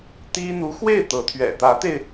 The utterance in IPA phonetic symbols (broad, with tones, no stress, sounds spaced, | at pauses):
t̪ i˥ n̪ u˧˥ x w e˥˩ ɪ̯ t̪ ɤ˧˥ t̪ʰ ɥ ɛ̰˨˩ t̪ ä˧˥ t̪ e˧ ɪ̯